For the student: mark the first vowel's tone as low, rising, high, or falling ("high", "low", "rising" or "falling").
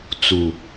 low